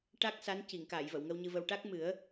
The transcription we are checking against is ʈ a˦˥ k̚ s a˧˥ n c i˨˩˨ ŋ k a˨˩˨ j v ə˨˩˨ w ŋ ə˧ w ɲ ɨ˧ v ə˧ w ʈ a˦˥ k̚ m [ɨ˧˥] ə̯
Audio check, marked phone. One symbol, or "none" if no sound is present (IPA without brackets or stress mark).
ɨ˨˩˦